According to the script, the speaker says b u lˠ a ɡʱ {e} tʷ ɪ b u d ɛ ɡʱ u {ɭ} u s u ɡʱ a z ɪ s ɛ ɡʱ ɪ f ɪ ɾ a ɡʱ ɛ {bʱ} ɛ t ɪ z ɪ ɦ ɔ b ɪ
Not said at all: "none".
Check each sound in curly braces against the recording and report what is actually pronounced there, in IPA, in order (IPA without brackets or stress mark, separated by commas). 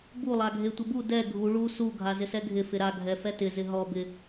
e, ɭ, f